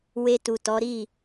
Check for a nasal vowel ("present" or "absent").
absent